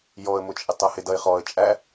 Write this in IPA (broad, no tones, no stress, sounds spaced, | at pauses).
j ɔ ə̯ m ʊ t͡ʃʼ ɪ tˤ ʌ h ɪ d ʌ ɪ̯ χ ɔ ə̯ t͡ʃʼ æ